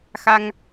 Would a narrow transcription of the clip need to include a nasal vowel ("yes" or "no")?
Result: no